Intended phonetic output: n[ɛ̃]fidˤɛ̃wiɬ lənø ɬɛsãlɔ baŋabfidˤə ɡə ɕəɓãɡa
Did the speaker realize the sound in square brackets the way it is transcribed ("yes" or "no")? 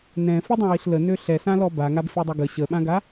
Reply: yes